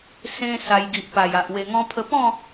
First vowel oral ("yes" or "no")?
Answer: no